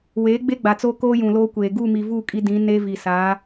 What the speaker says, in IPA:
weː˨˦ɡ͡be˦ɡ͡ba˨t͡so˦ koː˦jũ˨loː˦kʷeː˨ ɡu˦˨mi˨vu˦˨ kʼi˦dĩ˨˦ ne˦vi˨sa˨˦

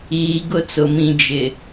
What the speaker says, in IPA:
iː˨ɡʊ˦˨t͡sʊ˨mĩ˨ d͡ʒɪ˨

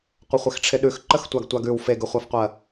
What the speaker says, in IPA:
qʷəχʷɪxʈ͡ʂʰɪɗʉx ǃəxtʷaɡtʷaɡʉw feɡʉχʷafqʷɜ

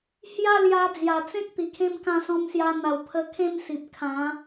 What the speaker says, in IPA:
hja˥˧ lja˧d͡zja˨˩t͡sẽ˦k̚ t̪i˨˩kʰẽ˦mkã˥˧ sɔ̃˧msja˧n̪a˨˩wpʰə˧ kʰẽ˥˧msi˨p̚ kʰã˨˦

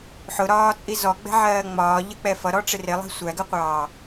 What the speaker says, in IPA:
ħʊɾɒːt͡sʼi zɔɡ͡bɛ̤ʕɜː ŋ͡mɒːʎək͡pɛ fʌɾɔʈ͡ʂɪ rɪlˠɛ̤ sʷæɡəqʷɑː

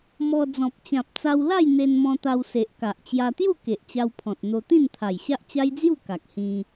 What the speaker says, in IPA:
mɔ˧ d͡zɔ̃˨p̚ t͡ɕã˨p̚t͡sa˧wla˥˧j n̪e˧nmɔ̃˧ t̪a˧wse˨ʔ ka˨ʔt͡ɕja˧t̪ju˥˧ ke˨ʔt͡ɕa˧wpʰɔ̃˨t̚ n̪o˧ t̪ĩ˥˧nt̪ʰa˨˩jɕa˦ʔ t͡ɕa˦jd͡zju˥˧ka˨k̚ hĩ˧

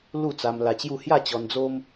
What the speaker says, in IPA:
lu˥˧t͡sa˧mla˧t͡ɕju˥˧ hja˥˧t͡ɕɔ˧nd͡zo˦m

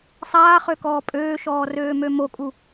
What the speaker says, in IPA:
sˤaːχøkɔː pʼøːʃɔːrøːmø mokʼu

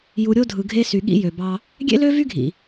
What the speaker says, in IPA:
ju˨ɾʲo˦ dʱɯ˨ɡʱe˦sy˨ ɠḭ˦jø˨bɑ˦ | ɡʲḛ˦lø˦ vy˦ɡʱḭ˨

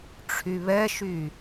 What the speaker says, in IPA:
ʈ͡ʂʰyβɛʃy

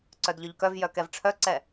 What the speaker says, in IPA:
ǀœdʎœʎkœvjœ kɛvʈ͡ʂʰœǀɛ

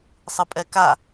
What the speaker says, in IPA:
sˤɯpʼɛka

